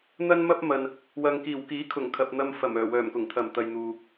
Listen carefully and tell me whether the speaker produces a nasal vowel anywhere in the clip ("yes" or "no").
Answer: no